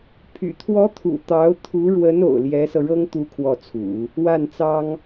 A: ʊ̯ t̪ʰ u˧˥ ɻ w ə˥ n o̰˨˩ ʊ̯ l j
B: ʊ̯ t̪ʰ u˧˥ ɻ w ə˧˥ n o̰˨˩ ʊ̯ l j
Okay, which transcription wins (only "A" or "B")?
B